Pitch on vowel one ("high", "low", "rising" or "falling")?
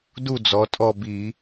falling